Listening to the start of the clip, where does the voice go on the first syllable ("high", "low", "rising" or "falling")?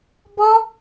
high